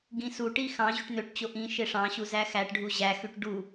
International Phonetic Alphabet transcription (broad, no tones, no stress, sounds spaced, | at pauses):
ɡ ĩ s u ʈ i x ɑ̃ ʑ y ʈ n̪ ø ʈ t͡ɕ o ʔ ĩ ʃ e ʂ ɑ̃ ɕ u z æ x æ ʈ ɖʱ u ʑ æ x y ʈ ɖ u